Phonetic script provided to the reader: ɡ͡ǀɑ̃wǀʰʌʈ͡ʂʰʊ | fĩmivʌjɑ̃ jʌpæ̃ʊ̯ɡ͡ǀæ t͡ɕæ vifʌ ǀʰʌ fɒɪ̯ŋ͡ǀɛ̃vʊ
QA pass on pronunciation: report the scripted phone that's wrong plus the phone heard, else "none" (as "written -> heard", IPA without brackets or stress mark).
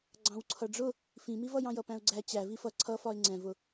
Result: ʈ͡ʂʰ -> ɖ͡ʐ